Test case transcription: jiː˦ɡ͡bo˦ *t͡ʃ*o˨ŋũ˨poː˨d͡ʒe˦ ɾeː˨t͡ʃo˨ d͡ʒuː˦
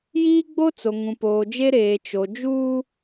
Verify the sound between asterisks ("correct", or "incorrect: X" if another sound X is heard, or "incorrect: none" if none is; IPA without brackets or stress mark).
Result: incorrect: t͡s